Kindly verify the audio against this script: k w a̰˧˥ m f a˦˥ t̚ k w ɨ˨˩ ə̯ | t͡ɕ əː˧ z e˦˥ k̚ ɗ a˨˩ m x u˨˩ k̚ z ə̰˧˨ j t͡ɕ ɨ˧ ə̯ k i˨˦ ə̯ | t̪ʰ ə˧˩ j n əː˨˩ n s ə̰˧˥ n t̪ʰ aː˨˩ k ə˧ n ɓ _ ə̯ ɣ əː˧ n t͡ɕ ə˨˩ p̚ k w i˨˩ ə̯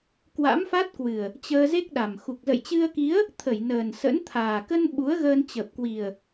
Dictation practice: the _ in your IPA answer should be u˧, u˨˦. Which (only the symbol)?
u˨˦